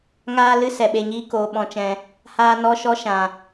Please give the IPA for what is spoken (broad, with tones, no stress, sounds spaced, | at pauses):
ŋ aː˦ l ɨ˦ s ɛ˨ ɓ e˧ ɲ iː˦ k oː˧ ɓ ɔ̃˧ t͡ʃ ɛ̃˧ | h aː˦ n ɔ˦ ʃ ɔ˦ ʃ ã˨